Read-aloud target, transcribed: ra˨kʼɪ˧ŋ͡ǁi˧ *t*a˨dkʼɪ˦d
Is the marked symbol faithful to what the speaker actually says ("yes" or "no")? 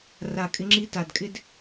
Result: yes